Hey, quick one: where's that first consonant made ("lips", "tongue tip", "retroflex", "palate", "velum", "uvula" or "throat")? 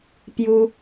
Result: lips